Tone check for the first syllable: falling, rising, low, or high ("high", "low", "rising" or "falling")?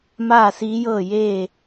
falling